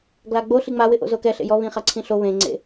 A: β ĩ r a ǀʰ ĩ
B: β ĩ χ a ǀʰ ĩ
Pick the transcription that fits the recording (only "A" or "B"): B